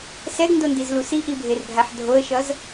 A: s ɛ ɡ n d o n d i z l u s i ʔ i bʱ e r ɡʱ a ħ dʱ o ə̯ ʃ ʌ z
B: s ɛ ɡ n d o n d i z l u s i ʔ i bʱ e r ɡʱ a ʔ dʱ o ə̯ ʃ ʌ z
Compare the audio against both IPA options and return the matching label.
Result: A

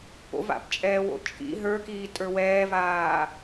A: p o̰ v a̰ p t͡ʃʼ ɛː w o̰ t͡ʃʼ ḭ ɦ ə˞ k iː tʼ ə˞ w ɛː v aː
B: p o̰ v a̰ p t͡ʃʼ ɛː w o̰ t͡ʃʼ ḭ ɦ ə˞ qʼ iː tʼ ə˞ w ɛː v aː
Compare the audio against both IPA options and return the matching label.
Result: A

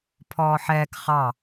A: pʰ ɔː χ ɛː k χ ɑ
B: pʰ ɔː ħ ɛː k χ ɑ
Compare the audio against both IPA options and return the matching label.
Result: B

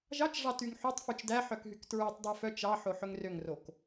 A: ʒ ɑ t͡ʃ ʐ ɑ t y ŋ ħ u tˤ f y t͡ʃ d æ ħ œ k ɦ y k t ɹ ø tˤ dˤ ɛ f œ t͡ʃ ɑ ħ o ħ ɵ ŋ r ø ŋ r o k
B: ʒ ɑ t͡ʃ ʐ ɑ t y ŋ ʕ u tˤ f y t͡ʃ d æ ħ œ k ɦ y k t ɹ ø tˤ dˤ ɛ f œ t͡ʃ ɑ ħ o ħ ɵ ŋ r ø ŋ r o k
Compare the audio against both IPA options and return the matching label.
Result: A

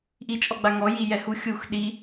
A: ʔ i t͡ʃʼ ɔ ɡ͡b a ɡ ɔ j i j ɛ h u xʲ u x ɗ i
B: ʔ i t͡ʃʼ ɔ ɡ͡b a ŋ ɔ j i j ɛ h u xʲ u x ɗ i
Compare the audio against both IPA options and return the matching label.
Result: B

